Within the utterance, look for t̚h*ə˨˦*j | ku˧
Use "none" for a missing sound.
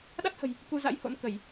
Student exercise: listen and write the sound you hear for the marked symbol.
ə̤˨˩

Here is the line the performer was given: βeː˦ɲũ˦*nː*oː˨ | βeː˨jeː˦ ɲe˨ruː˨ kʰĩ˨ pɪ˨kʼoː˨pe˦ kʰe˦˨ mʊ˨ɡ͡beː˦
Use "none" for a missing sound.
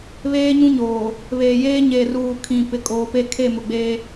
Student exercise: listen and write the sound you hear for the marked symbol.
ɲ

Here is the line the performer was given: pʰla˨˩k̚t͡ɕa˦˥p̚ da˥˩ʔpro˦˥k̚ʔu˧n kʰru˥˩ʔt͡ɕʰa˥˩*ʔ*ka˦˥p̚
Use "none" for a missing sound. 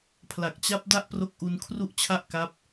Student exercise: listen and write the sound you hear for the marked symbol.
ʔ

